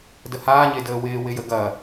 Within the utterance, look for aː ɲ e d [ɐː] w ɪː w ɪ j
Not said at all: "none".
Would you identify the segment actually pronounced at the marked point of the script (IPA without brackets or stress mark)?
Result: əː